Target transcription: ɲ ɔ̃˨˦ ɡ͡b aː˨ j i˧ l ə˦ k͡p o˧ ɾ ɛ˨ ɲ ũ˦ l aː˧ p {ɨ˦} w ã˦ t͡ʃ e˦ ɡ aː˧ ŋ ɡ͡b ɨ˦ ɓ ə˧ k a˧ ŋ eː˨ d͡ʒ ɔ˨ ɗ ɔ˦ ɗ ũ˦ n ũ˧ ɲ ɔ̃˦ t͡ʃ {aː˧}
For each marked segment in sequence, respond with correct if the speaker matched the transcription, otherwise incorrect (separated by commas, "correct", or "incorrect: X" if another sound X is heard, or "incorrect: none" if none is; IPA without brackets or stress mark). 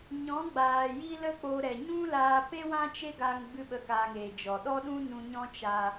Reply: incorrect: e˦, correct